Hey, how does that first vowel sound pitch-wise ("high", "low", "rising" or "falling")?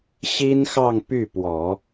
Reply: high